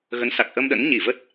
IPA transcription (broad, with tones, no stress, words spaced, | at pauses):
ɣə˨˦nsa˨˩k̚ʔə˧mɗə̰˧˥n ɲi˧˩və˦˥t̚